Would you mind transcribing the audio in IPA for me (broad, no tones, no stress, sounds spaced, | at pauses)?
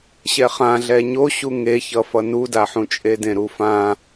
ɕ ɛ χ ã ɮ ɛ ɲ o ɕ u ŋ e ç ʌ f ʌ n u d a ħ ũ t͡ʃʼ e d ẽ ɾ u f ã